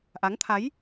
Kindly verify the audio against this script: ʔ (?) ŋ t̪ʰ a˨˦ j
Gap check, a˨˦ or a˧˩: a˨˦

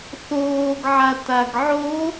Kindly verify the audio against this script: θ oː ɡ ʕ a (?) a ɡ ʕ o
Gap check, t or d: t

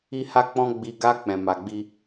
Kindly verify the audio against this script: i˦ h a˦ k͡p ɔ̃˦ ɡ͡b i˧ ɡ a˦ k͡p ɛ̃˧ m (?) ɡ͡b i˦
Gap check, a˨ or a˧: a˧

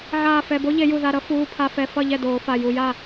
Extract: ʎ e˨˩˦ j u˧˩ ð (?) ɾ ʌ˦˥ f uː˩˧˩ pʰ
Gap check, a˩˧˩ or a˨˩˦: a˩˧˩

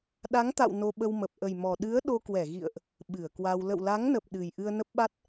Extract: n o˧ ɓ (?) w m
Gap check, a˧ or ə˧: ə˧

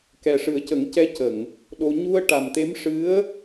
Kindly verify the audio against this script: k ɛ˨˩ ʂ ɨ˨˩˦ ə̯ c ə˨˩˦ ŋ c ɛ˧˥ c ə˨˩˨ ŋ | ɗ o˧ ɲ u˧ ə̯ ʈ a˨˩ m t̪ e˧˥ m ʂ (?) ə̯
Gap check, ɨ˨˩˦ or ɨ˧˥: ɨ˧˥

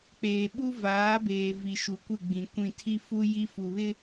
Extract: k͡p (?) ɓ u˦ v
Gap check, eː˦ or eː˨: eː˨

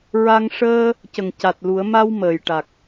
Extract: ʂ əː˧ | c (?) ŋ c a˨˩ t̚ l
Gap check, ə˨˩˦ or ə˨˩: ə˨˩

